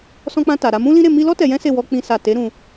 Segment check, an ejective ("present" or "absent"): absent